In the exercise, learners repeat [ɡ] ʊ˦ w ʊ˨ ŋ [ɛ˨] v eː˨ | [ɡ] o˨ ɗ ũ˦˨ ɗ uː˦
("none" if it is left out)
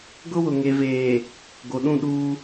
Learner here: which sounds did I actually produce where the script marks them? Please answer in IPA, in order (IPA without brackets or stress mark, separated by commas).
ɡ, e˨, ɡ